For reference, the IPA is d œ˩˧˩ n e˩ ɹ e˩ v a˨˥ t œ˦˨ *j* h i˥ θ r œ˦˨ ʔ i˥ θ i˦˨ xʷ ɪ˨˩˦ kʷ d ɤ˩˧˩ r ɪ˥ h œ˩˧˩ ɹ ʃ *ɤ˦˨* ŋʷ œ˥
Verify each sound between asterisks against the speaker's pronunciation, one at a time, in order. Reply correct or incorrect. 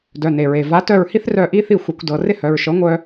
incorrect: ɹ, incorrect: ɤ˨˥

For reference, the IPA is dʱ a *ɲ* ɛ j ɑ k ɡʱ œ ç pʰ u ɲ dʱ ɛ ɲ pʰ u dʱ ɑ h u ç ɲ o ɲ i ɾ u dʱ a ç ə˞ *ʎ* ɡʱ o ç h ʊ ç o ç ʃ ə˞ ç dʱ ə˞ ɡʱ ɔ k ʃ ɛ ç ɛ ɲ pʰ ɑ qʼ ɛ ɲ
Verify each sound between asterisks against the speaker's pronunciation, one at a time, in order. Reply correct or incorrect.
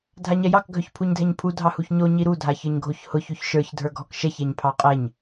correct, incorrect: ɲ

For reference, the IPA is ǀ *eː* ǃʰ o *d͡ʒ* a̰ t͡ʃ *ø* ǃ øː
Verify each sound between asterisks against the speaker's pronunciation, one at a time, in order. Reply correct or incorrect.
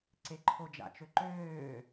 incorrect: e, correct, correct

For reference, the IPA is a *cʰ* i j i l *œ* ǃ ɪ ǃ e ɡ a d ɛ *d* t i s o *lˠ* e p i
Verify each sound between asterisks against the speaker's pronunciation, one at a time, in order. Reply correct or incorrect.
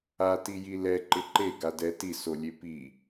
incorrect: t, incorrect: ɛ, incorrect: none, incorrect: lʲ

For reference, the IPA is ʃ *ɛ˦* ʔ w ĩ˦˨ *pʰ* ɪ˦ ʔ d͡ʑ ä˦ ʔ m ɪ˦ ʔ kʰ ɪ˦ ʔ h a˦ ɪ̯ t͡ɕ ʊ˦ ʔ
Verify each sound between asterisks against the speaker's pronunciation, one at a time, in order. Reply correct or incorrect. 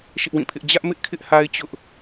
incorrect: ɪ˦, correct

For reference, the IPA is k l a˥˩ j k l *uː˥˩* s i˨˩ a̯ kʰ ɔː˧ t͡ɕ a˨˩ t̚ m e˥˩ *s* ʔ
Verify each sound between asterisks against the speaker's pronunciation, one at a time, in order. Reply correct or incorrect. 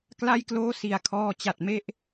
incorrect: oː˥˩, incorrect: none

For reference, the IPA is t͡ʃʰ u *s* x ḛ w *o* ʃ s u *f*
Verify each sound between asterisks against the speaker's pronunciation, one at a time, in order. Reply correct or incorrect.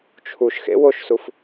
incorrect: ʃ, correct, correct

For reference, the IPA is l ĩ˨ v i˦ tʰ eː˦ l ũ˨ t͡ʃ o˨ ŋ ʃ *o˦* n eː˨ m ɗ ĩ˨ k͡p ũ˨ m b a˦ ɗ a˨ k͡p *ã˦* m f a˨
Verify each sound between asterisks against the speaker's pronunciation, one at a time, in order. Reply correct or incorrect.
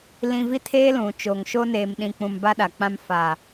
correct, correct

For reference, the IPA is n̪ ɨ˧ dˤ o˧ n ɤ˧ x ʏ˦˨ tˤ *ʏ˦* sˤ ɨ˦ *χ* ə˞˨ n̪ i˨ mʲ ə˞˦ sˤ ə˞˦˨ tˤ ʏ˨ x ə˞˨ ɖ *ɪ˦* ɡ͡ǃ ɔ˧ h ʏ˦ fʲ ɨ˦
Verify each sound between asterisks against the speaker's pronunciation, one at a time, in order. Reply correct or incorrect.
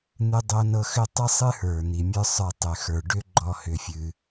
incorrect: ɨ˦, incorrect: h, incorrect: ʏ˦

